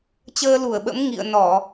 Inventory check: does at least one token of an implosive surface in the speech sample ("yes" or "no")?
yes